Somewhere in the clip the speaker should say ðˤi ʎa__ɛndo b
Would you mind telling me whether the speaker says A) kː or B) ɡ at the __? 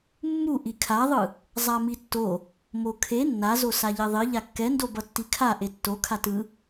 A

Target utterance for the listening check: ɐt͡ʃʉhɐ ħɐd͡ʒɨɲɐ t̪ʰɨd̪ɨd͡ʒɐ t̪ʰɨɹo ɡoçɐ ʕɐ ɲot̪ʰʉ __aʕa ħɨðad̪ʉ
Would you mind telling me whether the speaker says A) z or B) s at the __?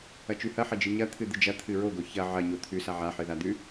B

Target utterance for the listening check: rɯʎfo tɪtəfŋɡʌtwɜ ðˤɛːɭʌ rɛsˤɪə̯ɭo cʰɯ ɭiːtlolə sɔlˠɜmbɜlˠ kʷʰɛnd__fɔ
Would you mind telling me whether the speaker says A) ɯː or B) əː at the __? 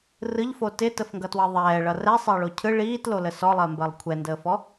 B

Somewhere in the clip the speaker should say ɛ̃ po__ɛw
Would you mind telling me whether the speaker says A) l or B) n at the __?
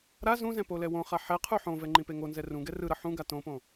A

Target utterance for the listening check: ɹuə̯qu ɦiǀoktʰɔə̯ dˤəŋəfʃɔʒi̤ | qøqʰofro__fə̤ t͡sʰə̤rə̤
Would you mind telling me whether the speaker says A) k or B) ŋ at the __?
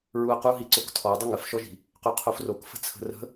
A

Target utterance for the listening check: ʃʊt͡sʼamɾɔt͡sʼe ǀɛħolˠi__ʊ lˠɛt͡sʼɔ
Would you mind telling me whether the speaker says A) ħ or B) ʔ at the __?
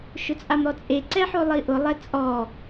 B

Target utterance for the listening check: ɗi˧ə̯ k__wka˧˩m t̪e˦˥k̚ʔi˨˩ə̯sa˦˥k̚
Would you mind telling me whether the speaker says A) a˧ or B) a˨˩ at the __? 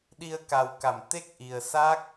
B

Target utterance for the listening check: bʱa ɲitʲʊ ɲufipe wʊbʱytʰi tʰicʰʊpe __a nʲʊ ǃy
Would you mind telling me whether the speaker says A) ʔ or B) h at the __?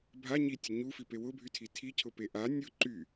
A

